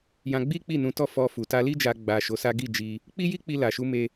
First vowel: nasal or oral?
nasal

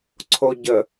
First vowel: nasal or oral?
oral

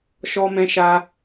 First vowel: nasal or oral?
oral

